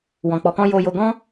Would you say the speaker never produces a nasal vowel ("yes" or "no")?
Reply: no